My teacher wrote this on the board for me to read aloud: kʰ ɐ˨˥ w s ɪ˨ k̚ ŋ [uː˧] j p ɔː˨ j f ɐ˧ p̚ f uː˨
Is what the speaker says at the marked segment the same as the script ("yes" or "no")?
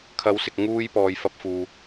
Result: yes